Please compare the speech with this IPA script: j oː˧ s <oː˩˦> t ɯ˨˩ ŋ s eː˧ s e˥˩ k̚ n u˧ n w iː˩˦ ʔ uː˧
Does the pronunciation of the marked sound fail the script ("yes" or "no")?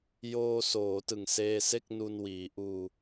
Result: no